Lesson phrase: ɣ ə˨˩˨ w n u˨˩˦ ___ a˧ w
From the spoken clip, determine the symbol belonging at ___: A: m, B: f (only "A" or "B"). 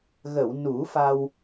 B